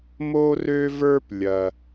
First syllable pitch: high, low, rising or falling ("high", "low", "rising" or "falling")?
high